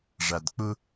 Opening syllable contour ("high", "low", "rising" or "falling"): low